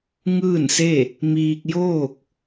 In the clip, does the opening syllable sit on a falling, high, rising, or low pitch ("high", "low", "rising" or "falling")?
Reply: falling